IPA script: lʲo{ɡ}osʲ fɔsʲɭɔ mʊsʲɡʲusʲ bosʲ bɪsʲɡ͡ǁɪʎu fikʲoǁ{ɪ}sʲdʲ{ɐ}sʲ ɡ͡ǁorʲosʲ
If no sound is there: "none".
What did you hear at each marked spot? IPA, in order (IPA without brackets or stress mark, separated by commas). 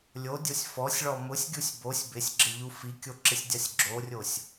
dʲ, ɪ, a